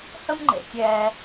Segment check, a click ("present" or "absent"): present